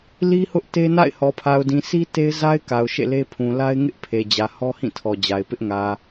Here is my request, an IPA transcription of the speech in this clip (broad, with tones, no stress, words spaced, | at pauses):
li˦hʊ˦ʔ te˦na̰˦˨ɪ̯ hɔ˨pʰa˨ʊ̯dĩ˨ sʰi˦ te˦ɪ̯za˦ɪ̯ ka˨ʊ̯ʃḛ˦˨le˦pʰũ˨ la˦ɪ̯ ŋɪ˦ʔpʰe˨ d͡ʑä˨hɔ˦hĩ˦˨tʰɔ˨ d͡ʑa˨ɪ̯pɪ˦ʔ ŋä˨